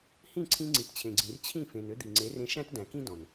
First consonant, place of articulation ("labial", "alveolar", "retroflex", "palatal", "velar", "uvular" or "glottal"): glottal